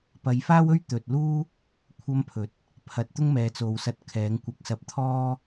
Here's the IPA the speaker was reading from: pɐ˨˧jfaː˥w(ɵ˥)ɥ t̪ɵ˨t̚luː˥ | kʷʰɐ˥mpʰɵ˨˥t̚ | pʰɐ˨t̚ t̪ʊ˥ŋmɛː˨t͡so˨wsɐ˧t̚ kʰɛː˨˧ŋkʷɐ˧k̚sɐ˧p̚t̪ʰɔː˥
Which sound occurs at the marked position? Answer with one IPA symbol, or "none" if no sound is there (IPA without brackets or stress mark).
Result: ɵ˥